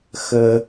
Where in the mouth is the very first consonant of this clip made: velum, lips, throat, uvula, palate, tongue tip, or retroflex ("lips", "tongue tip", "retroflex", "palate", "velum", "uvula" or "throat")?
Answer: velum